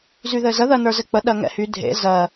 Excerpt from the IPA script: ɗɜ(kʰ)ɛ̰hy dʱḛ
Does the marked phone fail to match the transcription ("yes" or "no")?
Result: yes